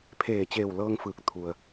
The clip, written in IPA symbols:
pʰ eː˧˩ t͡ɕ eː˧˩ w l ɤː˧ ŋ f ɯː˧˩ k̚ t̪ʰ u˩ ə̯

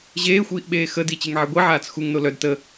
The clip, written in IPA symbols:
ʑ eː xʷ iː ʔ ɓ eː x ə d i t͡ɕ e ŋ ʕ i ɡʷ i ʕ aː t͡s x u ŋ n o l œ d t ə

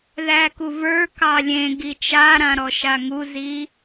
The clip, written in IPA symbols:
ð æ k u v ə˞ k ɑ lʲ ẽ ɡ i t͡ʃ a ɾ ã ɾ ɔ ʃ a ŋ u z i

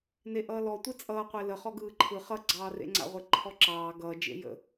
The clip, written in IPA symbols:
n e ʔ ʌː l ɔ tʷ e t͡sʼ ʌː qʷ e l ə χ ɔ ɡ ɯː ǃʰ ɯ χ ʌ ɡ͡ǀ ɑː r ḛ ŋ͡ǀ a̰ ʁʷ e ǃʰ ɔ ǁ ɑː ɡ ʌː d͡ʒ ḛ j ə̰

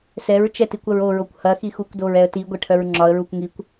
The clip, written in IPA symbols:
s ɛ ɹ t͡ʃ ɛ t i kʷ ɐ ɹ o ɹ o kʷ h ɐ x i x u kʷ d o ɹ ɛ ə̯ t i ɡʷ ɛ ʈʰ œ ɹ ŋ͡ǁ ɒ ə̯ ɹ u kʷ ŋ i kʷ

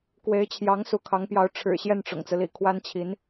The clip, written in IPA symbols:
k w e˧˥ ɪ̯ t͡ɕʰ j ɑ˧˥ ŋ s u˧˥ kʰ ɑ˧˥ ŋ p j ɑ˧˥ ʊ̯ ʈ͡ʂʰ ɻ̩˨˩ ɕ j ɛ˥˩ n ʈ͡ʂ ʊ̰˨˩ ŋ t͡s ɹ̩˦ l ḭ˨˩ kʰ w a˥ n t͡ɕʰ i˧˥ n

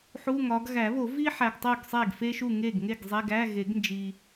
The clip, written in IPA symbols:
ħ u˧˥˧ ŋ ɒ˨˦ ɡ ɣ æ˨˩˦ β o˨˩˦ v i˥ ħ æ˨ ɡ tˤ u˥˩ ɡ sˤ e˥˩ ɡ f e˥ ʃ u˥˩ ŋ e˥˩ ɡ ŋ e˥˩ ɡ zˤ e˧˥˧ ɡ æ˧˥˧ ɣ e˨˩˦ ɡ n d͡ʒ i˨

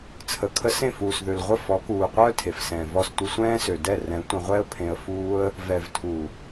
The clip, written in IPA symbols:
t͡sʰ ə˨ kʰ ə˧ s ẽ˦˨ f uː˨ s ð ø˨ l ʁʷ ə˦˨ f ɔ˨˦ k uː˨ qʷ œː˦ tʰ e˨ f s ɛ̃ː˨ v ɔ˧ s tʷ ə˧ sʷ ɛ̃ː˦ s ø˨ d ɛ˦˨ r ɛ̃˨˦ tʷ ə̃˧ ʁʷ ɛ˦ ə̯ pʰ ẽ˧ ə̯ f uː˦ ə̯ | v ɛ˨ v tʰ u˨

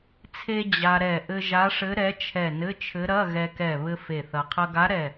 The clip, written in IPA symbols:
t͡sʰ e˧ d͡ʑ a˧ ɾ ɛ˧˩ ʔ ɘ˧ ʒ a˧˥ ʂ ɘ˧˥ ɾ ɛ˧˥ t͡ʃʰ ɛ˧˩ n ɘ˧˥˧ t͡ʃʰ ɘ˧˥ ɾ ɐ˧˥˧ ɣ ɛ˧ k ɛ˧˩ β ɘ˧ f e˧˩ θ ɐ˧ qʰ ɐ˧ ɡ a˧˥ ɾ ɛ˧˩

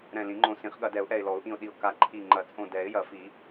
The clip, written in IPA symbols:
ɾ ɛ̃˧˩ l ĩ˨˩˦ ŋ͡ǃ õ˧˩ s ĩ˨˩˦ χ ɠ ɐ˨˩˦ d ɛ˨˩˦ ʊ̯ ʔ ɛ˧˩ ɪ̯ l ɔ˨˩˦ ʊ̯ ʔ ĩ˧˩ ʊ̯ ɗ i˧˩ ʊ̯ k a˧˩ ǃʰ i˧˩ ŋ͡ǃ ɐ˨˩˦ t͡sʼ õ˧˩ d ɛ˨˩˦ ɪ̯ j ɐ˨˩˦ f i˨˩˦

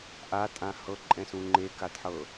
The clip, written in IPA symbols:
ʔ a tʼ ã h ɤ ǃʼ ɛ̃ s ũ ŋ͡ǃ e k a d ħ ɤ

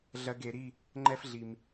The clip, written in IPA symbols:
ɮ ɜ˧ ɡ e˩˧ ɾ i˥˧ | ŋ͡ǃ ɛ˥ f ɮ i˧ m

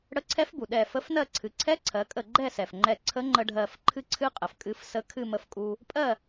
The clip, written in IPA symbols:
ɽ ə˧˥ ǀʰ ɛ˧˥ f b u˩ ɗ ɛ˧˩ f ə˧˥ f n ɜ˥˨ ǀʰ ɨ˩˧ ǀʰ ɛ˧˥ ǀʰ ɜ˩˧ kʼ ə˧˩ ɡ͡ǃ ɛ˥˨ s ɛ˩ f ŋ͡ǃ ɛ˧˩ ǀʰ ə˧˥ ŋ͡ǃ ə˧ ɖʱ ɜ˧˩ f ǃʰ ɨ˧ ǀʰ ɨ˧ qʼ ə˩ f kʼ ɨ˧ f s ə˧ kʰ ɨ˥˨ m ə˧ f kʼ u˧ | pʼ ɜ˥˨

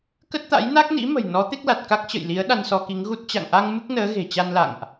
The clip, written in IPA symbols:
k ə˦˥ t̚ t̪ a̰˧˥ j n a˦˥ k̚ n ḭ˧˥ m ə̤˨˩ j n ɔ˨˦ t̪ e˦˥ k̚ l a˨˩ t̚ k a˦˥ k̚ t͡ɕ ə̰˧˨ j l i˨˦ ə̯ ɗ a˧ n s ɔ˧ k i˨˦ ŋ ɣ u˦˥ t̚ t͡ɕ a̰˧˨ ŋ ʔ a˧ ŋ m ɨ˦˥ k̚ n əː˨˦ ɣ e̤˨˩ t͡ɕ a˧ n l a̰˧˨ ŋ ʔ

